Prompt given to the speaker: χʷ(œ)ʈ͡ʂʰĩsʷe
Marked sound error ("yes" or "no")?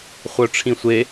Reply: no